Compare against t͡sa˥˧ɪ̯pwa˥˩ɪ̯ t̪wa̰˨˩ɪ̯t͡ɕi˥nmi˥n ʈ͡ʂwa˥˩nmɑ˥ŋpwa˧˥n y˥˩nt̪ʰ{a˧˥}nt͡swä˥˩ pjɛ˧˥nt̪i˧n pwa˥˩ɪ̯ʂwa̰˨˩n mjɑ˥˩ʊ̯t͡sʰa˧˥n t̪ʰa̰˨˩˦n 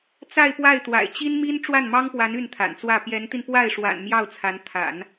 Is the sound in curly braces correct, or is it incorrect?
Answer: incorrect: a̰˨˩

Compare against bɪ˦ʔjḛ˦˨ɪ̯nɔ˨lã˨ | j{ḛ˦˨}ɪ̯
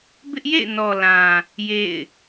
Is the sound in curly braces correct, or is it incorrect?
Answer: correct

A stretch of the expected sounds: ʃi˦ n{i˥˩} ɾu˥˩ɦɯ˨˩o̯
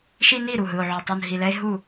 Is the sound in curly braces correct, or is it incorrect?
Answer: correct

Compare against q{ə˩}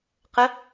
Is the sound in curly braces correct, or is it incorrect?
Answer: incorrect: ə˩˥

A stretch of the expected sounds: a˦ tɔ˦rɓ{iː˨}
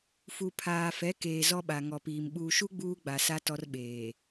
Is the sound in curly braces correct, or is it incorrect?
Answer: incorrect: eː˨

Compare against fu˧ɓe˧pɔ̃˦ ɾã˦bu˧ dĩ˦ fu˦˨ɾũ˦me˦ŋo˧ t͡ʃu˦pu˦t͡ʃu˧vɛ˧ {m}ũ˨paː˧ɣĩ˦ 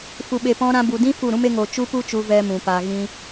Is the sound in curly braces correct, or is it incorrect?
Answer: correct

